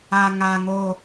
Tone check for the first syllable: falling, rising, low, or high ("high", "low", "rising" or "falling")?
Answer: low